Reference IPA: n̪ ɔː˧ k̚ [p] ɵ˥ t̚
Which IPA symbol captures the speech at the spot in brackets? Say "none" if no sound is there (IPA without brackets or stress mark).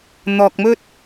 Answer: m